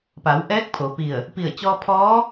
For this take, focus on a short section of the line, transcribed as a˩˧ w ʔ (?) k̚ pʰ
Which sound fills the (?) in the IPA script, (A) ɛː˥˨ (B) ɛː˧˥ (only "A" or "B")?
B